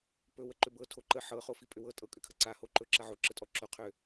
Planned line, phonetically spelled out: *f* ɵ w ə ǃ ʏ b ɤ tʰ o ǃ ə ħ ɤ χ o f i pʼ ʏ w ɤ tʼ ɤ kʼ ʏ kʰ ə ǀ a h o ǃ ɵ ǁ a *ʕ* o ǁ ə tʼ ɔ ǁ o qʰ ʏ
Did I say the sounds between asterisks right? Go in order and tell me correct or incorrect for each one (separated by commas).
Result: incorrect, correct